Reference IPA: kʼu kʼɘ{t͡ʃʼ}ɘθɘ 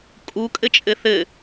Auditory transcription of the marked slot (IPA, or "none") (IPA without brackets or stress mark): t͡ʃʼ